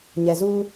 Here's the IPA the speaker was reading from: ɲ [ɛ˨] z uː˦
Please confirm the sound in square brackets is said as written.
yes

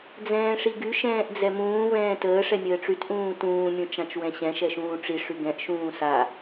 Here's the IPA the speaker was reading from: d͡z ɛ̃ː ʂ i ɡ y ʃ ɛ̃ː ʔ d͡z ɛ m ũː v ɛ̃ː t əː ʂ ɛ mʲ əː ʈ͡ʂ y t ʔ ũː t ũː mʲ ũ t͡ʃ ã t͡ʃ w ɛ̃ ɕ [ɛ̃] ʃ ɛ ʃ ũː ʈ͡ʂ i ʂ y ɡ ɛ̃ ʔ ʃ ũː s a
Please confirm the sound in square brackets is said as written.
yes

